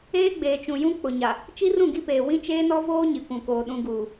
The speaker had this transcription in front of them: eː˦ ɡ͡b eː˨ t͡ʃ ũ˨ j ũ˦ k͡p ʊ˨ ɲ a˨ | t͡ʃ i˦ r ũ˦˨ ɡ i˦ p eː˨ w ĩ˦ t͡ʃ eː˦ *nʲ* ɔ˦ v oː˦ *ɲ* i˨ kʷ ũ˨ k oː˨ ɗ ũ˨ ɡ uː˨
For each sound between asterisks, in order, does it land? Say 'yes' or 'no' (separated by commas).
no, yes